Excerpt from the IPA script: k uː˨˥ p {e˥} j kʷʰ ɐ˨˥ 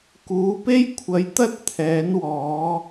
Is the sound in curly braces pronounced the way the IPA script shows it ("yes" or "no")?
yes